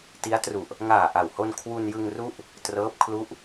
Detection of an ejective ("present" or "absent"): absent